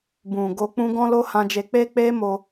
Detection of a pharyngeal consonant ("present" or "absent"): absent